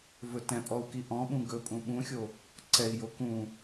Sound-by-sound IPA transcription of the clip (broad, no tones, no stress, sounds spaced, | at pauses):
v ɵ t ɛ̃ pʼ ɔ u̯ k i ʔ ɔ̃ ɓ ũ ɡ ɵ pʼ ũ ɓ ũ xʲ o | ǀ ɛ i̯ j o k ũ